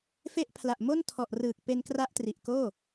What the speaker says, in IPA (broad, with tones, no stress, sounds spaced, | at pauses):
f e˦˥ ʔ pʰ l a˨˩ ʔ m o˥˩ n tʰ ɔ˨˩ ʔ r ɯː˨˩ k̚ p e˧ n k r a˦˥ ʔ t r i˨˩ ʔ k oː˥˩